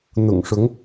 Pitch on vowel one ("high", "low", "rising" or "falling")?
low